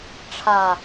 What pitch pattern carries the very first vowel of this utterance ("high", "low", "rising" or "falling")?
low